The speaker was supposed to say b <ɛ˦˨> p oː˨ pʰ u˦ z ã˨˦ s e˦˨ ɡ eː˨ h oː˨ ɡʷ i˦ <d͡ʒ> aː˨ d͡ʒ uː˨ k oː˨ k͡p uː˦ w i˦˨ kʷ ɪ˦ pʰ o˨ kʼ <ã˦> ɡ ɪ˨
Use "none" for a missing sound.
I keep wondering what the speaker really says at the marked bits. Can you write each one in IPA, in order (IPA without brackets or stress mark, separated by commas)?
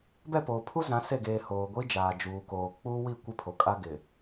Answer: ɛ˦˨, d͡ʒ, a˦